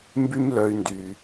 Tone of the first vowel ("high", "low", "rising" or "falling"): high